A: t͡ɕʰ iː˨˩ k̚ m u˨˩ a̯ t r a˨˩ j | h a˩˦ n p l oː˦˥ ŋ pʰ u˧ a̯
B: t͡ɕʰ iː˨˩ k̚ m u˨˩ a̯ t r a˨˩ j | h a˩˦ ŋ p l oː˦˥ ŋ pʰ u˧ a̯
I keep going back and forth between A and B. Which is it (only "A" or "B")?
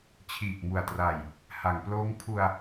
B